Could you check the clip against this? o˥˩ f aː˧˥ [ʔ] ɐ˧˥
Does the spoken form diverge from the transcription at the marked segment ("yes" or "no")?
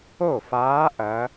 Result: no